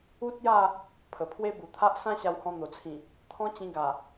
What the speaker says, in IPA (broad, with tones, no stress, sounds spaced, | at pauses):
u˦ t̚ j a˥˧ | pʰ ə˨˩ pʰ w e˦ b u˨˩ t̪ʰ a˦ ʔ s ã˦ ɕ a˧ w h ɔ̃˧ n̪ o˨˩ t͡sʰ ĩ˨˩ | t̪ʰ ɔ̃˦ t͡ɕ ĩ˧ ɡ a˨˩